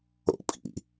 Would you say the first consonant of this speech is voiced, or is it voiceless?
voiceless